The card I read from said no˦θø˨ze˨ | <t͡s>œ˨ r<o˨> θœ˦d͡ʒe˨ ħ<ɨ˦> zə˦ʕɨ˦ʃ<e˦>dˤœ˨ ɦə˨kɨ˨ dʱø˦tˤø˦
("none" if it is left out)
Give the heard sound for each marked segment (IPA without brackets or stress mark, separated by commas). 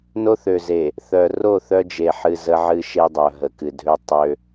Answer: θ, o˦˨, ɨ˨, e˦